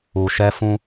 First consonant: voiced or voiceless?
voiceless